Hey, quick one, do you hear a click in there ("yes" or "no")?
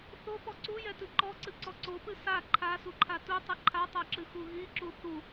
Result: yes